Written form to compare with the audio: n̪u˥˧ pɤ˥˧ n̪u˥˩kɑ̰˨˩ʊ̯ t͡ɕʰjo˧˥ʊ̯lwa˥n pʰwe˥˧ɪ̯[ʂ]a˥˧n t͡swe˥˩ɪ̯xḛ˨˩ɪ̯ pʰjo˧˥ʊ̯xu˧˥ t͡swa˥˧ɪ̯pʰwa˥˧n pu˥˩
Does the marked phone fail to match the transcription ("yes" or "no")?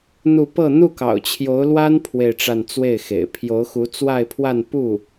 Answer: yes